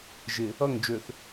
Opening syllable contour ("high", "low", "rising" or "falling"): low